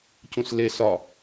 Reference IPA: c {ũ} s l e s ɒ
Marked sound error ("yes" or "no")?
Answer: no